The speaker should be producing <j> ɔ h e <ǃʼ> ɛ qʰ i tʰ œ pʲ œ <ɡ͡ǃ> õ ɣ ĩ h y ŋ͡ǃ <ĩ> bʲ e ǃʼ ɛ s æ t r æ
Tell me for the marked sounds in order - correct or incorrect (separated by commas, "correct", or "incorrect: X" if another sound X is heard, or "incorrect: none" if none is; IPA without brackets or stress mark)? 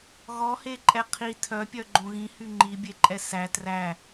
incorrect: ɣ, correct, correct, incorrect: i